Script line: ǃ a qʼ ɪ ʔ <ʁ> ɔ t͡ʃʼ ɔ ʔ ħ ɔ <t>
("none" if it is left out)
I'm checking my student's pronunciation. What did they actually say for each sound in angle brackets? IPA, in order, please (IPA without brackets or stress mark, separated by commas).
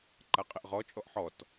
ʁ, t